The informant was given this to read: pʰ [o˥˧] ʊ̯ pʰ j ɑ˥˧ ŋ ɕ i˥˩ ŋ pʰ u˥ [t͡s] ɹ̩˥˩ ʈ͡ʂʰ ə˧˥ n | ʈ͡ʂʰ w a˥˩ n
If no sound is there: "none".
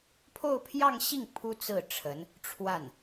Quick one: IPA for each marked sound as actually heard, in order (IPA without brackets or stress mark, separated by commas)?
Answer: o˥˧, t͡s